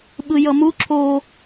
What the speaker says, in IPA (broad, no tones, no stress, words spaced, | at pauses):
ɓɯjʌmu ǁo